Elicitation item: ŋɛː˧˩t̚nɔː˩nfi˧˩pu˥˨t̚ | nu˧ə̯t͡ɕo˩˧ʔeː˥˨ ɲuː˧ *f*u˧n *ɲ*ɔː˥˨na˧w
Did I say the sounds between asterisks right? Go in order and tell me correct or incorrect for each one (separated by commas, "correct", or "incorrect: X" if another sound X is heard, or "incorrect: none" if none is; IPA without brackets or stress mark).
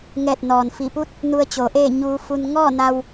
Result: correct, incorrect: ŋ